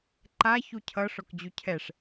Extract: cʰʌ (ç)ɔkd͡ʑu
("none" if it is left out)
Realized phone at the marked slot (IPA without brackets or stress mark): ʂ